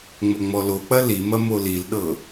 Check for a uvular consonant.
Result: absent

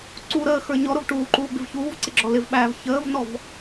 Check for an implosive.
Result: present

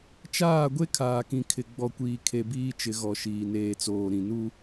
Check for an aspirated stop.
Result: present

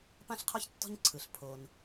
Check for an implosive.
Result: absent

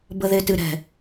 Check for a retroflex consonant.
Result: absent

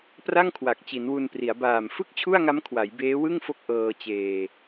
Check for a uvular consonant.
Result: absent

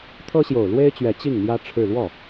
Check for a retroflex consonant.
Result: present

